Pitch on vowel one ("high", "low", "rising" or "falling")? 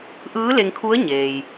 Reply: rising